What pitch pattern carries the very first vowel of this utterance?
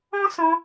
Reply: high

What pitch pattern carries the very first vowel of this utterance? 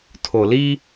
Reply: low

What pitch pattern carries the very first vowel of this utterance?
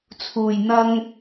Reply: low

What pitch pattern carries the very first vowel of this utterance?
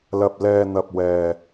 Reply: low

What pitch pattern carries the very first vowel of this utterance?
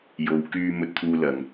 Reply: low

